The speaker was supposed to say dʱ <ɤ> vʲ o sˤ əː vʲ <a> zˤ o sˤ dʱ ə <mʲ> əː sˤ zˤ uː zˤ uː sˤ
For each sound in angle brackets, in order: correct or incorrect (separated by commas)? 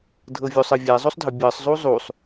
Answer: correct, incorrect, incorrect